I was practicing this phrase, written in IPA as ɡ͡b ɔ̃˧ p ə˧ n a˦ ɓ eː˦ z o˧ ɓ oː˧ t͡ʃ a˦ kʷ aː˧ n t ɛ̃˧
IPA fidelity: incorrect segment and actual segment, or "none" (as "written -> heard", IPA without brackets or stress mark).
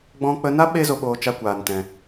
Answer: p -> k͡p